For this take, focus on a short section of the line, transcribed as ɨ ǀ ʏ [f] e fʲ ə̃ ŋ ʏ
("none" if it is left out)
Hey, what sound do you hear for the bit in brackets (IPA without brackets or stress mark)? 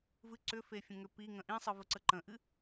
f